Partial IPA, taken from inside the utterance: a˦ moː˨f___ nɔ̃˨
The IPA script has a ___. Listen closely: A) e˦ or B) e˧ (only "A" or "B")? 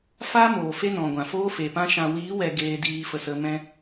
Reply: A